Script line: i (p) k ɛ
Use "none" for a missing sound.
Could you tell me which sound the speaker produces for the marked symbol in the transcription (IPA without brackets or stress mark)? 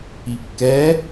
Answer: p